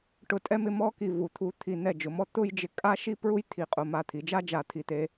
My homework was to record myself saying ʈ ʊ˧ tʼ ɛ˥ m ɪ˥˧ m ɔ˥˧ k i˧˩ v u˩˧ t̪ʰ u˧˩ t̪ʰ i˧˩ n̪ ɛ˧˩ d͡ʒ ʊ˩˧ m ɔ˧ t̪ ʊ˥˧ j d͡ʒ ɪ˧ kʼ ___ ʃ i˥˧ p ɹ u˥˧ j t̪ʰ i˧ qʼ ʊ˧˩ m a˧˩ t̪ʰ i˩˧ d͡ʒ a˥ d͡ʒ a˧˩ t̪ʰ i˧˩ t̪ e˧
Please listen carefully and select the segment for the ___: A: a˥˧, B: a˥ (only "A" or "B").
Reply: B